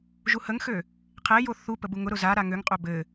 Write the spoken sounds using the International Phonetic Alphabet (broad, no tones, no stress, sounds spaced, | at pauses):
ʒ u h ə ŋ x ø | qʰ e j o θ u p ə b u ŋ ʊ ɾ ʊ z a ɾ a ŋ ø ŋ qʼ ø b ɘ